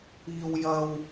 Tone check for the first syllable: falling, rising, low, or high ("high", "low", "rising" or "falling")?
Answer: high